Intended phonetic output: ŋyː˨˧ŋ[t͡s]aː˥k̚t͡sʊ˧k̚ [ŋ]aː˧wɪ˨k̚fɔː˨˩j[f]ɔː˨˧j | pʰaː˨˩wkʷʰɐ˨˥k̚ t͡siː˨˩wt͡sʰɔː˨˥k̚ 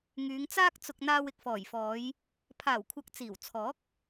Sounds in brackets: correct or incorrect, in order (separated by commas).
correct, incorrect, correct